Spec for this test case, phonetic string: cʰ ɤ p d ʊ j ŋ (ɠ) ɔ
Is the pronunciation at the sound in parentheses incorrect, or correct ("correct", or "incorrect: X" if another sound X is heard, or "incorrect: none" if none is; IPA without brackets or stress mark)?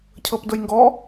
incorrect: ɡ